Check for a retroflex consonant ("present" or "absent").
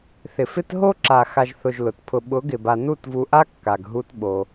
absent